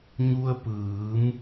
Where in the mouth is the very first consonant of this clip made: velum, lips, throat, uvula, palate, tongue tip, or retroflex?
palate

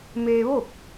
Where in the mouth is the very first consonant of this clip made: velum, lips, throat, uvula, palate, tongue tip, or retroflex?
lips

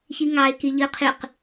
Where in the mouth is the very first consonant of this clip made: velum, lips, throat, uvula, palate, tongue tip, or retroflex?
palate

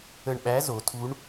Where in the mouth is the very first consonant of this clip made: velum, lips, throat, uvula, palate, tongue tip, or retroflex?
retroflex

